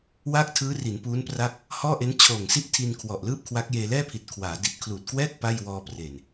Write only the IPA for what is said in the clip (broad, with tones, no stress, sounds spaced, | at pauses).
w aː˥˩ k̚ tʰ ɯː˦˥ r i˩˦ n p uː˦˥ n p r a˥˩ k̚ | h ɔː˥˩ ʔ e˦˥ n t͡ɕʰ oː˨˩ ŋ s i˥˩ ʔ tʰ i˧ n kʰ w ɔ˨˩ ʔ l ɯː˥˩ p̚ kʰ w a˦˥ k̚ j eː˧ l ɛː˥˩ pʰ i˨˩ t̚ kʰ w aː˩˦ d i˨˩ t̚ kʰ l uː˨˩ t̚ k w ɛː˥˩ k̚ p a˥˩ j w ɔː˧ p r e˨˩ n